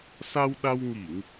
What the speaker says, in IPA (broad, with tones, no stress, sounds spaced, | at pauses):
s a˧ w ɗ a˧ w ŋ i˧˩˨ ŋ